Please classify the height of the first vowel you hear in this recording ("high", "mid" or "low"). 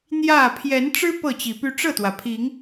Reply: low